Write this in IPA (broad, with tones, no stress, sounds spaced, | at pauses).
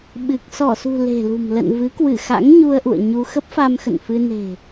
ɓ ɨ˨˩ k̚ s ɔ˧˩ s ṳ˨˩ l e̤˨˩ l ṳ˨˩ m l ə̰˧˨ n v ɨ˨˦ k w ɨ˧˩ x a̰˧˥ ŋ ɲ u˧ ə̯ ʔ ṵ˧˨ ə̯ ɲ u˧ x ə˦˥ p̚ f a˧ m x ə̰˧˨ n f ɨ˧ n e̤˨˩